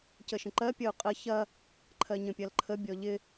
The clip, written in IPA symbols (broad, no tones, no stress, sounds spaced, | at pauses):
c ə ʃ ə̃ ǃ ɜ pʲ ʌ u̯ qʼ ə ç ɐ | ǃʰ ɜ ɲ ə̃ pʲ ɐ l ǃʰ ə bʲ ɔ ʎ ɪ